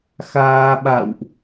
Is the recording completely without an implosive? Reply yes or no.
no